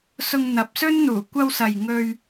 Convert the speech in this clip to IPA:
s ʊ˧ ŋ n̪ ɐ˨˥ p̚ s ɵ˥ n n̪ uː˨˩ kʷ ɐ˧ w s ɐ˨ j ŋ ɵ˧ ɥ

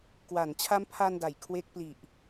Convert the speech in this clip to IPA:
k w a˩˦ n t͡ɕʰ a˦˥ m pʰ a˧ n d a˨˩ j kʰ w e˦˥ k̚ p l i˨˩ ʔ

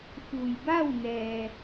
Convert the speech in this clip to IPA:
f u˩ j b a˥˨ w n ɛː˩

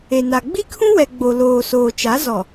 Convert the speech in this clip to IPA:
e˨ n a˨ ɡ͡b i˦ kʰ ũ˦ w ɛ˨ ɡ͡b o˨ l oː˨ s oː˨ t͡ʃ a˨˦ z ɔ˨

